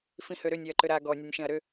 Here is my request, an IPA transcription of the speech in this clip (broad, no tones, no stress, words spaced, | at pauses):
fĩhøɾʏ nʲɛɐ̯ǃʏɾa ɡɔ nʲɛnʲʃɛ̃ɐ̯ɾʏ